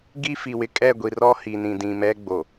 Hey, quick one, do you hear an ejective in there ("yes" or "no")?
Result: yes